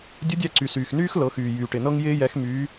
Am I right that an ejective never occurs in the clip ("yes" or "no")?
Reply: yes